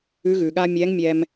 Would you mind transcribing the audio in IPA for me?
ʉ˧˥ɣʉ˩ɠa˥ mʲɛ˧˥ŋmʲɛ˧m

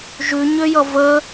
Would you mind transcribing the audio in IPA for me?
ʒʉɲøjʌ və

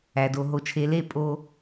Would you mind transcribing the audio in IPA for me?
æ˨do˨ ɦo˨t͡ʃʰe˨le˦˨ pʼo˦

